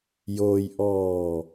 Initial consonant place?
palatal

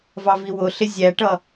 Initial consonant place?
labial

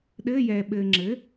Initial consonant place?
alveolar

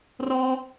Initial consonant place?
alveolar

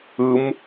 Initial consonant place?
labial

